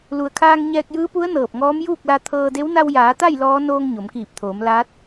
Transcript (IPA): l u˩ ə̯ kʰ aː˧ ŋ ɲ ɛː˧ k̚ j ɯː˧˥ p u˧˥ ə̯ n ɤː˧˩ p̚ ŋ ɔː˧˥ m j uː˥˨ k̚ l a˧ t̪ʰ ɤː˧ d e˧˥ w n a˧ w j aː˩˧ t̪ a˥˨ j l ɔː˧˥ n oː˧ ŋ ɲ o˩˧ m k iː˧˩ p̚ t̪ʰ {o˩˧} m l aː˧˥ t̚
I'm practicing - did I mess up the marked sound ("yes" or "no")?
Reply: yes